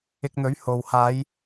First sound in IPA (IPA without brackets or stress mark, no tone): ɪ